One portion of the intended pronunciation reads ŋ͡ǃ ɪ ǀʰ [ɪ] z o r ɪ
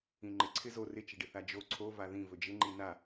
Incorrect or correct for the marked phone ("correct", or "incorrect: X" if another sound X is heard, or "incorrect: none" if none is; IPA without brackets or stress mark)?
correct